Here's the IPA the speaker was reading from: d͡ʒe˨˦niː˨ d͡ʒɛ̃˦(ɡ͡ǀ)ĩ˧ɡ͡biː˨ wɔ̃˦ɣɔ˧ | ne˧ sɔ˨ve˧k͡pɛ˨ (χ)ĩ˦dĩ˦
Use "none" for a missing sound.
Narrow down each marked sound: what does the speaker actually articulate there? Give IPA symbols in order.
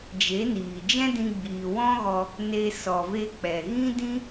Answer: d, ɣ

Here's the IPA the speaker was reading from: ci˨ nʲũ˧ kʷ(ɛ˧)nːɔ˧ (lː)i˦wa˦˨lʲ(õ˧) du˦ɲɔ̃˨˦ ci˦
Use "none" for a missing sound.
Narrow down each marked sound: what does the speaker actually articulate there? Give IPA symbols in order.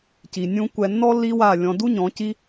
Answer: ɛ˨, lː, ɔ̃˧

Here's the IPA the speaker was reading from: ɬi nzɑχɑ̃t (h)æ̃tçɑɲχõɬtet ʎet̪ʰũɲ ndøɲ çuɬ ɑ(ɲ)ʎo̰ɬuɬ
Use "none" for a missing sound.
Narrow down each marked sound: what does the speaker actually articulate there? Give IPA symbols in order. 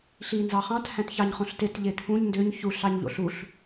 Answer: h, ɲ

